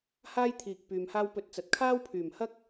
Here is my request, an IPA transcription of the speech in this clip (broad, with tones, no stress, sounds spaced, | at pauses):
h aː˥ j t̪ʰ iː˨ k̚ p yː˨ m h aː˥ w p ɵ˧ t̚ t͡s ɐ˨ t̚ kʰ aː˥ w pʰ yː˨˩ m h ɐ˥ k̚